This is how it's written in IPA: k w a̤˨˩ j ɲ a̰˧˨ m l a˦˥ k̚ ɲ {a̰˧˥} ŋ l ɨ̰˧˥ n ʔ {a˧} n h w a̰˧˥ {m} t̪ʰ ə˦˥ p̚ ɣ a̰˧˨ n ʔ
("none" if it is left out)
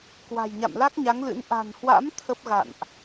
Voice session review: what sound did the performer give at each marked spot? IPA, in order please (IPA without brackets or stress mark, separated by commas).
a˨˦, a̤˨˩, m